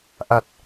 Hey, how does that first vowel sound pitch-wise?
low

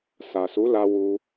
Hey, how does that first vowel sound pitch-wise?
low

